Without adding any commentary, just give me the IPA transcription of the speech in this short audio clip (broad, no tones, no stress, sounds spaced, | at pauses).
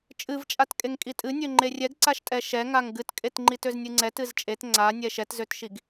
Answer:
t͡ʃʼ ɨ v t͡ʃʼ a t kʼ e ŋ kʼ i tʼ ɨ nʲ ø ŋ͡ǃ e rʲ ɛ ɡ ǀ a ʃ tʼ ɛ ʃ ɛ ŋ a ŋ ɡ ɨ t kʼ e t ŋ͡ǃ i t ø z nʲ ɨ ŋ͡ǀ ɛ t ɨ z t͡ʃʼ e t ŋ͡ǀ a nʲ ɛ ʃ ɛ t z ø t ʃ i ɡ